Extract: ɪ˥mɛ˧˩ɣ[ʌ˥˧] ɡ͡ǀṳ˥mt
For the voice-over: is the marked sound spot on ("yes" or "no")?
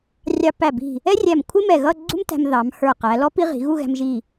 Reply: yes